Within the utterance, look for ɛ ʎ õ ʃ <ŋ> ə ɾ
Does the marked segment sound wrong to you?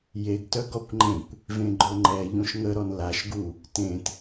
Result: no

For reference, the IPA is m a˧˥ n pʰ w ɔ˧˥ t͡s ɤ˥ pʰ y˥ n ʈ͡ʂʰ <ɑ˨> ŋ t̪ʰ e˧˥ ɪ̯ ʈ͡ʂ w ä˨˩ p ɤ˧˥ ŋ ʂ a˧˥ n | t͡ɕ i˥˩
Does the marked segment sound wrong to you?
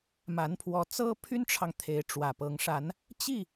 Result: no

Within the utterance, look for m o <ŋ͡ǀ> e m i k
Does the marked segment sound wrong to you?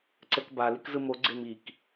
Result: yes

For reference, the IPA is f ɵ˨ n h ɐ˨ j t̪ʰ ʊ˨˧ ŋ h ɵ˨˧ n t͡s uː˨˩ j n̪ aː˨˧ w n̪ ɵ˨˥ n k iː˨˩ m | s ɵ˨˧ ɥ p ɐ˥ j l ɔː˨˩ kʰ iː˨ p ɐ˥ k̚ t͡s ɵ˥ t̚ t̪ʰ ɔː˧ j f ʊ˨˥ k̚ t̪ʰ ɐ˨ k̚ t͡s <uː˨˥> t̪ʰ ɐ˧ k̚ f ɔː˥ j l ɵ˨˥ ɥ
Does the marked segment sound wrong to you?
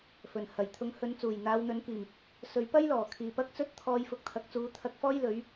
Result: no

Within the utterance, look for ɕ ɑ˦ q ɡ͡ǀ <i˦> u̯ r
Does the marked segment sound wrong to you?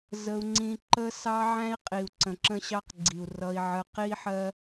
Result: yes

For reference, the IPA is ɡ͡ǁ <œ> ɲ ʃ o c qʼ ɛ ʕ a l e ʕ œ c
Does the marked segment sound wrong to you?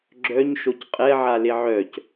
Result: no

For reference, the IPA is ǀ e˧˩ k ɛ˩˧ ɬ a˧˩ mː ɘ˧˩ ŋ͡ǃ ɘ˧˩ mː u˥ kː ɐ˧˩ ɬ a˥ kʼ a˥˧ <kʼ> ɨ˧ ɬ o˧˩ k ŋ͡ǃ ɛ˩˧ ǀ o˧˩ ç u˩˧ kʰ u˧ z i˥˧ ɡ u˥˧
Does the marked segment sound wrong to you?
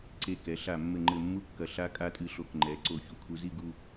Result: yes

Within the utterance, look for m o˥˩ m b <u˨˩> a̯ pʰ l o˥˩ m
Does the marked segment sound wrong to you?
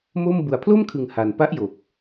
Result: no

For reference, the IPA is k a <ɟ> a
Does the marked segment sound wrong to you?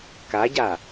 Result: no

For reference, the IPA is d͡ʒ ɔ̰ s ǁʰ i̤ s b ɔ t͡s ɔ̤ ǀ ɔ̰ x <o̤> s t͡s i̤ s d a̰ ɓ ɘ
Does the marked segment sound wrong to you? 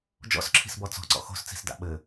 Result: no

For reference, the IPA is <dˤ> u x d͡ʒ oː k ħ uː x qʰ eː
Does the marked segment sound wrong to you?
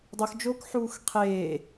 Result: no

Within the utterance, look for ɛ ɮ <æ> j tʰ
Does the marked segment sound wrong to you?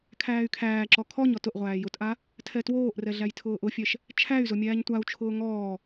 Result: no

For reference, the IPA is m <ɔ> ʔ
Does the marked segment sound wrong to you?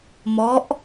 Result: no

